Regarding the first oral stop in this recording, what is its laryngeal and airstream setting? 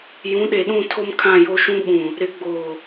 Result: implosive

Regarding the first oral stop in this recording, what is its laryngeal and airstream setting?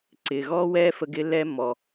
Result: click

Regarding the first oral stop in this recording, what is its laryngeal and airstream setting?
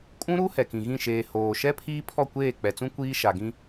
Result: ejective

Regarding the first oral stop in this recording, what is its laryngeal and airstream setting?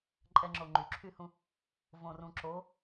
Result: click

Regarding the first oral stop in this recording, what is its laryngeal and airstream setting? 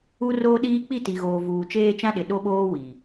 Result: implosive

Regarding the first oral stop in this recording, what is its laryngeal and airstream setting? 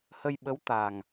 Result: implosive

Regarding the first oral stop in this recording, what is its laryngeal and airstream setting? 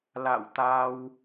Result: plain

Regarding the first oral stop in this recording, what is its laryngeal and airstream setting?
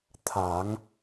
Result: aspirated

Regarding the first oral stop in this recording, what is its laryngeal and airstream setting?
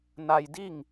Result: plain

